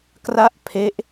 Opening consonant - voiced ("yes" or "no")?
no